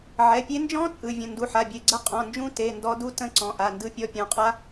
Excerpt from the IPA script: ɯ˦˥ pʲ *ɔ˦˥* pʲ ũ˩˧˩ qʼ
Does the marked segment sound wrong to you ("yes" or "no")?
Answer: no